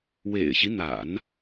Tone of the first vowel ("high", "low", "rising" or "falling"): low